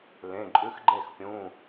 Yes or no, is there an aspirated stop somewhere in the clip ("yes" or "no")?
no